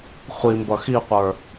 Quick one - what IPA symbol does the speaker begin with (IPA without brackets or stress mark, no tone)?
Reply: χʷ